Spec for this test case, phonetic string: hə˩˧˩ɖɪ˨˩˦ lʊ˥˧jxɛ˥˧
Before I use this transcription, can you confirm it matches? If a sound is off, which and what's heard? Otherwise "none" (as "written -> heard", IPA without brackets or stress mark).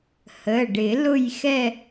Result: none